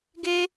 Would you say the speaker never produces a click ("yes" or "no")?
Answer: yes